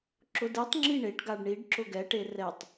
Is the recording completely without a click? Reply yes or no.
no